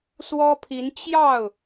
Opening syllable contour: high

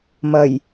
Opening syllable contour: low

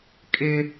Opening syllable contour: high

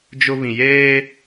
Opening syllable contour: high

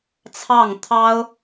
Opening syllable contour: falling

